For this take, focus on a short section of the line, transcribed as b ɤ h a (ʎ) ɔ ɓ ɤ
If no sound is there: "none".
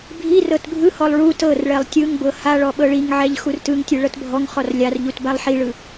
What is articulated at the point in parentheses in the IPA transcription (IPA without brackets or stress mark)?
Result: ɭ